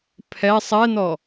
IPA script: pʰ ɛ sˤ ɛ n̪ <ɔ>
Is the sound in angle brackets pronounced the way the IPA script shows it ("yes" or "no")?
yes